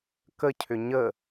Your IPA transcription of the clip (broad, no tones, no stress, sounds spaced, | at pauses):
k ə cʰ ʏ ɲ ə